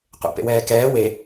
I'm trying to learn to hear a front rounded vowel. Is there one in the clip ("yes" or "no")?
no